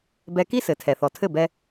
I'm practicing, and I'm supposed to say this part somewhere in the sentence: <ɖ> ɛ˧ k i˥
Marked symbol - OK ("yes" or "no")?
no